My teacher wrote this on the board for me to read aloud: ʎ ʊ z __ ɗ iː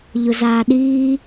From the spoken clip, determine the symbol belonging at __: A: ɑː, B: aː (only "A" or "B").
B